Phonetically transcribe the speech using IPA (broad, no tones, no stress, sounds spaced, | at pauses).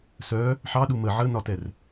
s œ | ħ ɑ ɗ u m ə ʕ ə n ɒ t ɛ r